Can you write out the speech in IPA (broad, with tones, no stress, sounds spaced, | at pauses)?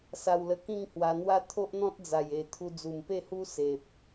s a˧ w l ə˧ k ĩ˥˧ ŋ h w a˧ n̪ w a˦ t̪ʰ o˦ ʔ n̪ ɔ̃˦ t̚ d͡z a˨˩ j e˨˩ t̪ʰ u˧ d͡z u˨˩ m p e˥˧ h u˦ s e˨ p̚